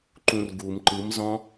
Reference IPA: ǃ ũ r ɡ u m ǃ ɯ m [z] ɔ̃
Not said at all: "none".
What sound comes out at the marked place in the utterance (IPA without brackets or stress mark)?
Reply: z